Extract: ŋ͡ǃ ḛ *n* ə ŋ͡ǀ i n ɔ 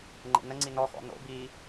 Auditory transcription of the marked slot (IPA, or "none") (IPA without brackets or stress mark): n